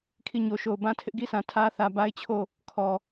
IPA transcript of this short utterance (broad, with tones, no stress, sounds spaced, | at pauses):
kʰ i˦˨ ɲ o˨ ʃ o˨ ʊ̯ b ã˦ tʰ ɪ˦ ʔ ɡ i˦ s ã˨ tʰ ä˦ θ ä˨ b a˦ ɪ̯ t͡ɕʰ o˦˨ | kʰ ɔ˨